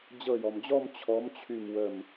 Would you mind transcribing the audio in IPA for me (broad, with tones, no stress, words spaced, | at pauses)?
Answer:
d͡ʑɤ˧˩jɔ˩md͡ʑɔ˥˧m t͡ɕʰɔ˨˥mt͡ɕʰy˧˩mwə˧˩m